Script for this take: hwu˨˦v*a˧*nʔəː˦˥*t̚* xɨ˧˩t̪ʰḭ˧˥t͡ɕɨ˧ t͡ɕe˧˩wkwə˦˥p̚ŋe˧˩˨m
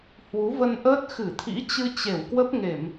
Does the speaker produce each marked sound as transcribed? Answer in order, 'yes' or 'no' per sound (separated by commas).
no, yes